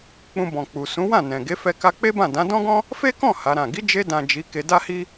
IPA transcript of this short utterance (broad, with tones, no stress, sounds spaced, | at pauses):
k͡p ũ˧ b ɔ̃˨ k͡p u˨ s ũ˨˦ w ã˦˨ n ɛ̃˨ ɡ e˨˦ f ɛ˧ k a˧ k͡p e˦ b ã˦˨ d ã˨˦ d ɔ̃˦ ɡ ɔ̃˦ | f e˦ k ɔ̃˦˨ h a˨˦ ɾ ã˦˨ ɡ i˨˦ d͡ʒ e˧ d ã˨ d͡ʒ i˨˦ k e˧ d a˦ h i˦